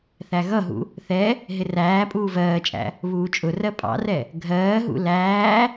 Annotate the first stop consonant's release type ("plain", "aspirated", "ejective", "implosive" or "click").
ejective